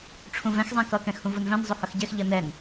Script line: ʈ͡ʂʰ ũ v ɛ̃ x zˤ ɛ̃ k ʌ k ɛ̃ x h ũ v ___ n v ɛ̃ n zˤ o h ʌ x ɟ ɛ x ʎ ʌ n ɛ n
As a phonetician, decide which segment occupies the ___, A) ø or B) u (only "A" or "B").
B